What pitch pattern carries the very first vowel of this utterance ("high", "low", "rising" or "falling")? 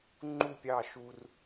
falling